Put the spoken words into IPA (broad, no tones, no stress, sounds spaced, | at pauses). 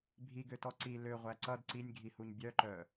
bʱ i ɡ ø t ɔ ǀ i l ø ʁʷ æ ǀ ʌ d ǀ i nʲ ɡʱ i h u ɲ bʲ œ ǃ œ